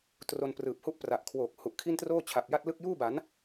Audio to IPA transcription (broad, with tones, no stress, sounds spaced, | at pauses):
t r o˧ n p r ɯː˨˩ p̚ h u˥˩ ʔ p r a˨˩ ʔ kʰ w oː˨˩ k̚ h u˨˩ ʔ kʰ i˥˩ n t r oː˥˩ t͡ɕʰ a˨˩ p̚ j a˥˩ t̚ l ɯ˥˩ k̚ j uː˥˩ b a˩˦ n